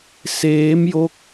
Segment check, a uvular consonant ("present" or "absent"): absent